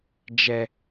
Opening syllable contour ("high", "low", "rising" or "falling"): low